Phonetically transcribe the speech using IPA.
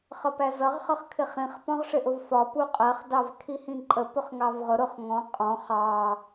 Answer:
χ ʌ p æ z ʌ ʁ χ ʌ χ kʰ ɪ χ ĩ χ p ɔ̃ ʁ ʂ ɪ ʔ ʊ v f ɒ p u qʼ ɜ χ d ɑ v kʰ i h ĩ ǃʼ ə p ʊ χ ŋ ɑ v ʁ ʊ ɾ ʊ χ ŋ ɔ̃ qʼ ɔ̃ χ ɑ

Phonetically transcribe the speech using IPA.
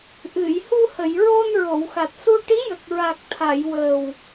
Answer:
ʔ ɨ˨˩˨ j h u˧ h ə˨˩˨ j ɹ o˧ n ɹ o˨˩˨ w x a˨˩ t̚ s u˧ ʈ i˧˥ j ə˨˩ k̚ ɹ a˨˩ k̚ t̪ʰ a˨˩˨ j w əː˨˩ w

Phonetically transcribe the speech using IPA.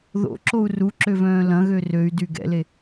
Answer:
ð o̰ ǁ o u̯ r u ǁ ø v œ̃ː l ɐ̃ ɣ ø r ø y̯ d y ɡ ɛ̰ l e

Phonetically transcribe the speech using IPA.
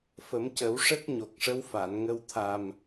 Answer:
f ə˨˩˦ m c ə˨˩˦ w ʂ ə˦˥ k̚ ɲ o˨˩ k̚ ʂ ə˧˥ w f a˨˩˨ n ŋ ə˧ w t̪ʰ a˨˩ m

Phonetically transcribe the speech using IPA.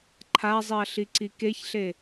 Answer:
ǃʰ a zˤ i ɐ̯ ɬ i ǀ i k e ç ɬ e

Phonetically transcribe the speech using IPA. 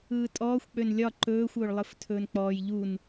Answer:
ɯː tʼ ɔː xʷ k͡p ø n lʲ ɒ ǃ ɵː xʷ ɵː ɭ lˠ ɯ f tʰ ɵː n k͡p ɔː j ʎ u n

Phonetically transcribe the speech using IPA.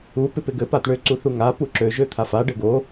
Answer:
u p ɪ p ɪ ɡ ɘ p a t ɳ ø ǀ u θ u ŋ a p u ǁ ø ʒ ø t̪ʰ a f a ɖ ɘ ɡ o

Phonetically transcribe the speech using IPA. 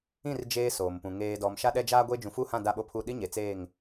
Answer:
ĩ˦˨ r d͡ʒ eː˦ s oː˨ m p ũ˨ ŋ eː˨ d ɔ˨ m ʃ a˦ ɗ ɛ˦ d͡ʒ aː˦ ɡʷ e˦ d͡ʒ ũ˨ f u˦˨ h ã˦˨ d a˦ ɓ o˦ pʰ u˦˨ ɗ i˦ ɲ e˨ t͡s eː˦˨ ŋ

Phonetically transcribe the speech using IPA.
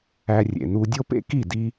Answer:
æ˧ rʲ ḛ˨ n u˧ dʲ o˦ p ḛ˦ k i˦˨ d i˧

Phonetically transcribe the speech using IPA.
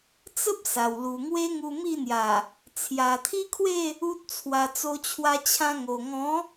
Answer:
t͡s ə˦ p̚ s a˨˩ w l u˨˩ ŋ w e˦ ŋ u˧ m i˥˧ n̪ j a˨˩ | t͡sʰ j a˨˩ t̪ʰ i˦ kʰ w e˥˧ | u˦ t̚ t͡sʰ w a˧ t͡s o˧ t͡ɕʰ w a˧ t͡ɕʰ ã˧ ŋ o˨˩ ŋ ɔ̃˨˦

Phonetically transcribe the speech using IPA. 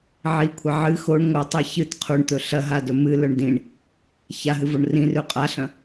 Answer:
ʕ i kʷʰ ɐ ʕ ɨ x o ɳ ŋʷ ɐ tˤ i ç ɨ t qʰ u ɳ t̪ ɵ ɬ ɐ ɦ a d ɵ m ɨ l ɵ ɳ d ĩ ɳ | ç a ɦ ɨ v o ɳ r ĩ r ʉ qʼ a ɬ ɐ̃

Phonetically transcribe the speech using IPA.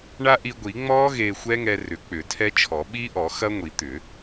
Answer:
ɳ a˦˥ ʔ i˧ ɡʷ i˨˩˦ ŋ͡m ɔː˦˥ ɣ eː˧ xʷ ɛ˦˥ ŋ ɛ˧ r ʏ˨˩˦ k͡p ʏ˨˩˦ tʰ ɛ˦˥ t͡ʃʰ ɔ˨˩˦ ɓ i˦˥ ʔ ɔ˨˩˦ x ɐ˦˥ ŋʷ i˨˩˦ t̪ ʏ˨˩˦

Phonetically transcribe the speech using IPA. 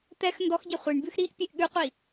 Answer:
t̪ ɛ x n d ɔ x ɟ ɛ χʷ i ɳ b ʉ x ɾ i ʔ pʲ e ʔ ɠ ʉ qʷ i

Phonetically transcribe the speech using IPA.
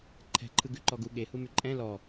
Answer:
ǃʰ ɛ̤ ǃʰ ɯ ɡ ʉ ǃ ɔ ɡ u ɠ e h u m ʉ ǃʼ ɛ̃ l ɔ

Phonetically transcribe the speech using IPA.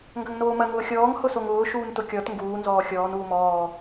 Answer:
ŋ ɡ ɐ ŋ n oː m ɐ ŋ ʊː xʲ ɔː ŋ h ʊ s o ŋ ʊː ʃ uː n t ʊ kʲ ɔ t ŋ ɡ uː n z ɔː xʲ ɔː n uː m ɔː

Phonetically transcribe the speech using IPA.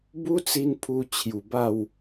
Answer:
b u˦ t͡s i˧ n pʰ u˧ t͡ɕʰ j u˨˩ b a˥˧ w

